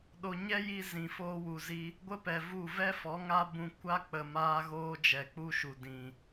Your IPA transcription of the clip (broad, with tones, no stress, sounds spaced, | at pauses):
ɗ o˧ ɲ ɛ˦ j i˧ z ĩ˨ f oː˧ w u˨ z i˧ | ɡʷ ə˦ p ɛ˨ v u˦˨ v ɛ˦ f ɔ˨˦ ŋ a˦ b ũ˧ kʷ a˦ k͡p ə˨ m aː˧ ɣ oː˧ d͡ʒ ɛ˨ k͡p u˧ ʃ u˨ d ĩ˨